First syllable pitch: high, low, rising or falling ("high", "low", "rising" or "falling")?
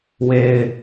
low